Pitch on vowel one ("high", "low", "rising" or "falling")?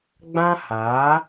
high